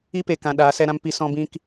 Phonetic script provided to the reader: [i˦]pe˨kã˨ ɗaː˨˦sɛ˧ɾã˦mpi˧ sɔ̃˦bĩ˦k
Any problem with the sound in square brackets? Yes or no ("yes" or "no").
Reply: no